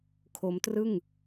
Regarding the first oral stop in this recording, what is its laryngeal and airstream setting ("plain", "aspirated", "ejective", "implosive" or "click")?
aspirated